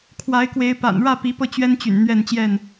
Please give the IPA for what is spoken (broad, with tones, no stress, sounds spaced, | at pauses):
kʰ w a˨˦ ɪ̯ k w e˨˦ ɪ̯ p a̰˨˩ n ɻ ä˥˨ p i˨˦ p ɤ˧ t͡ɕ ɥ ɛ˦ n t͡ɕ y̰˨˩ n n̪ ɥ ɛ˥˨ n t͡ɕ j ɛ˥˨ n